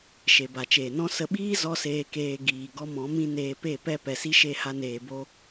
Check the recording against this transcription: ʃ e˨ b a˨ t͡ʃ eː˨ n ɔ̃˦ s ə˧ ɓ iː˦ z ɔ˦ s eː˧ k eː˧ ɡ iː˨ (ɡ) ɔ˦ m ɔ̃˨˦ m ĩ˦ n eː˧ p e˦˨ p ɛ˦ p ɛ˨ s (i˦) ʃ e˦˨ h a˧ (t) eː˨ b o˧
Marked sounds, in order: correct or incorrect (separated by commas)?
correct, correct, incorrect